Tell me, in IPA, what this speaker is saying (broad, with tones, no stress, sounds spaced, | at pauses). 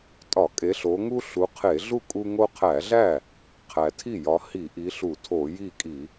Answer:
tʼ ɒ˧˩˧ kʼ e˨˦ ɬ o˨˦ ŋ u˦ ɬ u˨˦ qʰ e˧˩˧ ɮ u˥˩ kʼ u˦ ŋ o˦ qʰ æ˧˩˧ ɮ æ˥˩ | qʰ æ˨˩ tʰ i˥˩ j ɒ˨˦ h i˧˩˧ ʔ i˨˦ ɬ u˧˩˧ tʰ o˧˩˧ j i˥˩ kʼ i˧˩˧